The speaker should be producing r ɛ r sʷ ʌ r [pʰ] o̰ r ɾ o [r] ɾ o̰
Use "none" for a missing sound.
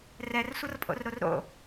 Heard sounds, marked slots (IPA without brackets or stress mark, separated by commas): pʼ, r